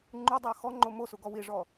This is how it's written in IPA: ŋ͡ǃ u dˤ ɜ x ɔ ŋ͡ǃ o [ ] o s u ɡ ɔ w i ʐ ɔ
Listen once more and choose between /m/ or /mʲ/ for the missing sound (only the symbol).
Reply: m